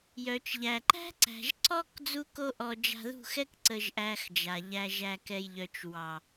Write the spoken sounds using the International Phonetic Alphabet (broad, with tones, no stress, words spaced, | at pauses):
jœ˨t͡ʃʎæ˨ ǃæ̤˦ǀæ̤˨ʒ ǀɔ˦k d͡zu˦ko˦ʔɔ˧ d͡ʒa̤˧ðṳ˦˨xɛ˦k ǀə˧ʒʔæ˧xd͡ʒa˨ ʎæ˨ʒæ˨kɛ˨j ʎœ˨t͡ʃ wɑ˨